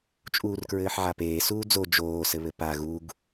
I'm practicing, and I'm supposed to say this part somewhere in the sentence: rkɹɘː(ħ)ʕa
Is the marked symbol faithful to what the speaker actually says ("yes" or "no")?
yes